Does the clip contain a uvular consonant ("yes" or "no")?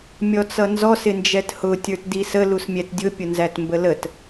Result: no